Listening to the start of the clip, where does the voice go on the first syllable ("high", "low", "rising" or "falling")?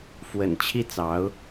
low